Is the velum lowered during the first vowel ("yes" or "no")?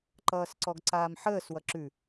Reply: no